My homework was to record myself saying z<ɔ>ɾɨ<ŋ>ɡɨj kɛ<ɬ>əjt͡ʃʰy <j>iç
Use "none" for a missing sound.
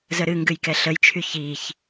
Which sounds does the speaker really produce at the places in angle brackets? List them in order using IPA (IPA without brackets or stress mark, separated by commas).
ə, ŋ, ɬ, ç